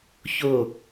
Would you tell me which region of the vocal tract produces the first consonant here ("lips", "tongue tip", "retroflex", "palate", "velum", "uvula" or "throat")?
palate